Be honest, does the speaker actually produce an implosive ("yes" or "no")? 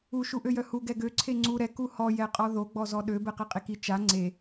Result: yes